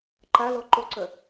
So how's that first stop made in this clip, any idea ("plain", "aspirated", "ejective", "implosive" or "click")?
click